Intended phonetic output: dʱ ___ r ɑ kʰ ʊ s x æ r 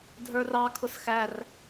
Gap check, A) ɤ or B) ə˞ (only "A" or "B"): B